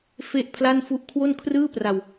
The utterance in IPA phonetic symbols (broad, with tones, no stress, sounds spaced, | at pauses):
f e˥˩ ʔ pʰ l a˥˩ n f u˦˥ ʔ kʰ w o˥˩ n kʰ r ɯː˥˩ p r a˧ w